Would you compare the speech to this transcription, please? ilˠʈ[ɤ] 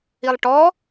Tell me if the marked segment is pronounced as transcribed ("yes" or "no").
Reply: no